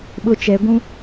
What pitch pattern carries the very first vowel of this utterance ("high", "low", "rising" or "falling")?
high